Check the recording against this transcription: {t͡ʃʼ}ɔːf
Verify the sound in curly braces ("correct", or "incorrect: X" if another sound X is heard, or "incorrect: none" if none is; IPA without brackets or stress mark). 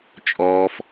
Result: correct